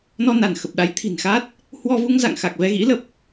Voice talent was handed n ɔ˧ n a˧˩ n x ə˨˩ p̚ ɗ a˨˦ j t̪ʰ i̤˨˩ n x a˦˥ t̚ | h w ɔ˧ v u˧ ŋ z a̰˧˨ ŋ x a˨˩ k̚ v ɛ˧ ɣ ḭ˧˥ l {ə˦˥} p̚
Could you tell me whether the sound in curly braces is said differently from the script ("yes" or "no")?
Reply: yes